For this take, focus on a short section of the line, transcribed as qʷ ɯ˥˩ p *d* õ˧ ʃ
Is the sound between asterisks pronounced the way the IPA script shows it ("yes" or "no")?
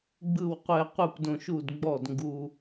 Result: yes